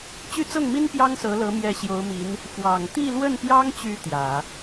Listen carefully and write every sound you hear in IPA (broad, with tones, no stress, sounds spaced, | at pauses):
t͡ɕ y˥˧ t͡s ɤ˥˩ ŋ m i˥ n p j ɑ˥ ŋ s ɤ˧˥ l ɤ˧˥ m j ɛ˧˥ ɕ j o˧˥ ʊ̯ m i˧˥ n | f w ɑ˨˩ ŋ t̪ i˥˧ l w ə˥˩ n p j ɑ˥ ŋ t͡ɕ y˧˥ t̪ j ä˨˩˦